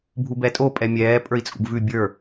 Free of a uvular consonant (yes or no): yes